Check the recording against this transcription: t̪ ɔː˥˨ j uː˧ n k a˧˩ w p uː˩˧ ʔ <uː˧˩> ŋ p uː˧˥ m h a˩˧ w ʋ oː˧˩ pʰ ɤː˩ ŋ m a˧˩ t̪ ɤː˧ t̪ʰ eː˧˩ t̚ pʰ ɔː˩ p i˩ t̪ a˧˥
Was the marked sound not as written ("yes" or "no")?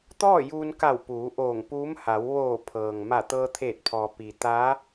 yes